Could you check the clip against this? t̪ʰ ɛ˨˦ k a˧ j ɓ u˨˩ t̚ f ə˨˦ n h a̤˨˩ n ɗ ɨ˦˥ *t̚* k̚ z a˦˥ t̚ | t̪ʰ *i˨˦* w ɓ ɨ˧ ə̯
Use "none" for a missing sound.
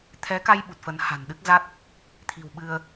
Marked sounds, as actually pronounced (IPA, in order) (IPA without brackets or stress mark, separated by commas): none, i̤˨˩